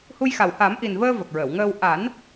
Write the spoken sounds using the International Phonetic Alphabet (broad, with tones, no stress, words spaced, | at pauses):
hu˧jxa˨˩w ha˨˩˦mʔi˨˩nvəː˧ və˨˩k̚ɹə˨˩˨wŋəː˧w ʔa˨˩˦n